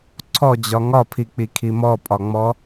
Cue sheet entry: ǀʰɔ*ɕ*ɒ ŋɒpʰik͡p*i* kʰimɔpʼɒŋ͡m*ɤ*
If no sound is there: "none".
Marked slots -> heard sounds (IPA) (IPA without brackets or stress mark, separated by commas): d͡ʑ, i, ɔ